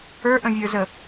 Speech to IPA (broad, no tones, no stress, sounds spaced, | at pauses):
ə˞ ʔ ə̃ vʲ ə˞ z ə